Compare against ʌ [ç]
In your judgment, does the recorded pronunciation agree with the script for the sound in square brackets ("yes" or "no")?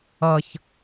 yes